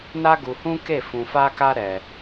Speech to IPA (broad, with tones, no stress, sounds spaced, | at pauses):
n a˦ ɡ u˧ h ũ˦ k e˦˨ f ũ˧ f a˦ k a˦ ɾ ɛ˧